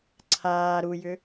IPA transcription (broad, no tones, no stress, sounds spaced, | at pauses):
ǀʰ aː ɾ u j ʏ